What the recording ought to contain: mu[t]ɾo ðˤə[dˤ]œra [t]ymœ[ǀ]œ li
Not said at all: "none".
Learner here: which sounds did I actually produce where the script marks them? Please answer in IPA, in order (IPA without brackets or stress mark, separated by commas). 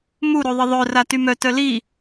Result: none, ðˤ, t, t